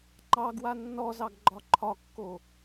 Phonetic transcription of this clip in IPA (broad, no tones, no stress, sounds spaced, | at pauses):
ŋ͡ǃ ɑ ɡ w a nː ɔ z ɑ ɡ ɡ͡ǃ ɒ ǃʰ ɒ kː o